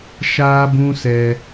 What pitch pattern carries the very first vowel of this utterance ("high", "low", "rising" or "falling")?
high